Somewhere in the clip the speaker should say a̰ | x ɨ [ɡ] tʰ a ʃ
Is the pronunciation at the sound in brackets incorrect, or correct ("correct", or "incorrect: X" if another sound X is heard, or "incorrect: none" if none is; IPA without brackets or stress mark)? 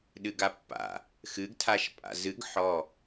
correct